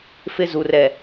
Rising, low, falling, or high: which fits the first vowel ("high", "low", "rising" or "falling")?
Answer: high